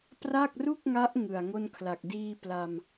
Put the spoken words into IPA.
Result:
p r a˥˩ k̚ r u˥˩ k̚ ŋ a˦˥ ʔ ŋ ɯ˨˩ a̯ ŋ o˥˩ n kʰ l a˨˩ k̚ d iː˥˩ p l a˧ m

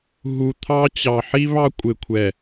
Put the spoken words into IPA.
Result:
ɦ u˨ t̪ʰ ɑ˦ t͡ɕ ɑ˨ ħ i˦ β ɑ˦ kʷʼ ɪ˨ kʷʰ ɛ˨

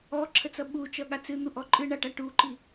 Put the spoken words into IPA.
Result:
ɔ ǁʰ ə t͡s ʌ ɓ u t͡ʃ ʌ ɠ a t͡s ɨ n̪ u ʔ ɔ ǃʼ ɨ ɳ a ʈ a ʈ u ǃ i

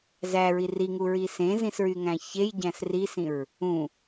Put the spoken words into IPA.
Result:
z æ ɹ i r i ŋ u ɹ i s ẽ z ĩ s ɹ y ŋ æ̃ ç e j ɟ æ̃ s r i s ĩ ɹ | ũ

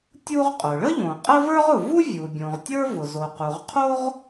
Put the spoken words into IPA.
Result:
tʲ u˥ ʁ qʼ ʊ˩ ɭ ə˥ ʎ õ˩ qʼ ə˥ v ə˞˥ ʁ ʊ˩ v u˥ vʲ u˩ bʲ õ˩ ʁ tʲ ə˞˥ v ʊ˩ z o˩ q u˩ ʁ qʰ o˥ ʁ

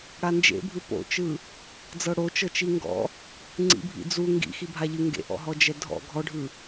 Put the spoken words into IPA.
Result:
ɽ a n d͡ʒ ḛ bʱ ɯ p o̰ t͡ʃ ɯ | d͡z ɤ ɽ o t͡ʃ ɤ t͡ʃ i ŋ ɡ ɔ̰ | ŋ͡ǀ ḭ bʱ ḭ d͡z u ŋ ɡ ḭ x i bʱ a ʎ ɯ ŋ ɡ ḛ ʔ ɔ̰ ɦ ɔ d͡ʒ ɛ dʱ ɔ̰ ɡʱ ɔ ɖʱ ɯ

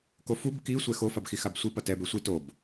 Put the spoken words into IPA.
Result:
k o f u b k i sʷ ɛ x o f a b x i x a b sʷ i p ʌ t ɛ b e sʷ i t o b

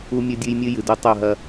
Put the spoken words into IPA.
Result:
u˦ mʲ ɵ˦ dʲ ɨ˦ j mʲ ɨ˦ j ɨ˨ d o˦ tˤ o˦˨ ɦ ɐ˦

